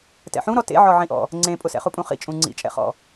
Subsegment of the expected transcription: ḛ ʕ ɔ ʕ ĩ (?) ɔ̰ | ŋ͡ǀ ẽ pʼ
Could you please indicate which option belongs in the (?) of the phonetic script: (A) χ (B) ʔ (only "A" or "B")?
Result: B